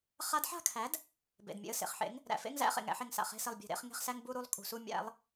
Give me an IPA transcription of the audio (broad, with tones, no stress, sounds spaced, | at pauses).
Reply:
χ a˧˥ d ħ a̤˥˧ kʰ æ˩˥ d | b ḛ˩ d mʲ ḛ˩˥ ə̯ s ḛ˩ χ ħ ḛ˩˥ ŋ | ɾ æ̰˩ f ḛ˧˥˧ ŋ z æ̰˥˧ χ ḛ˩ ŋ æ̰˥˧ ħ e˧˩ ŋ s a̰˩ χ e̤˧˥˧ s e˧˩ lˠ bʲ e̤˧˩ ɾ ḛ˧˥˧ χ ŋ e̤˥˧ χ s æ˧˥˧ ŋ b u˥˧ ɾ u˥˧ lˠ kʼ ṳ˩ s u˥˧ mʲ æ̰˩˥ lˠ